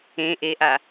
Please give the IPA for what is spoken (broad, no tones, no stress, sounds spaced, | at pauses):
ẽ ʔ e ʔ a